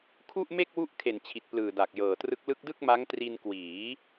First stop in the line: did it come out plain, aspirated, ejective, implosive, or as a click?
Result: aspirated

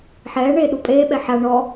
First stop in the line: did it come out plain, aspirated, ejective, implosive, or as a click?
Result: implosive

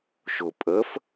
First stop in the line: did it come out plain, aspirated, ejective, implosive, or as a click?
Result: ejective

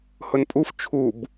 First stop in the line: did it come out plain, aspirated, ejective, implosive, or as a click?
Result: ejective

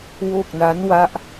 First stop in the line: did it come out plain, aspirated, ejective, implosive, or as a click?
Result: plain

